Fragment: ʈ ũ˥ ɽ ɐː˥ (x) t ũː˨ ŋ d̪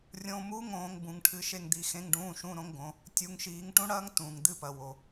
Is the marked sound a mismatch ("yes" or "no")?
yes